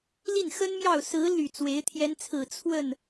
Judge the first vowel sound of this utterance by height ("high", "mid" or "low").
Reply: high